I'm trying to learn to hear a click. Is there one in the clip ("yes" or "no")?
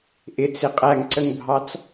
yes